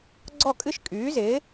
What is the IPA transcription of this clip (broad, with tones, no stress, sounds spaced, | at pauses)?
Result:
ɡ͡ǀ ɔ˥˨ kʼ ɨ˥˨ ʃ kʼ yː˩˥ z ɪː˩˥